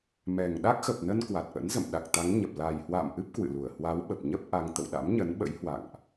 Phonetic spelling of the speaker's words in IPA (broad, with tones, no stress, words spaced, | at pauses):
mɛ˨˩ŋ ɗa˦˥k̚xə˨˩p̚nə˧n kwa˨˩t̚ʔə̰˧˥nzə̰˧˨m ɗa˨˩k̚t̪a˨˦ŋɲə˨˩p̚ la˨˩jhwa̰ː˧˨mʔɨ˦˥p̚ kwɨ̰˧˨lu˧˩ə̯ hwa˨˦wɓə˨˩p̚ɲə˦˥p̚ ʔa˧ŋ t̪ə̰˧˨wɗa̰˧˥mɲə˨˦nɓə̰˧˥j hwa̰˧˨ŋʔ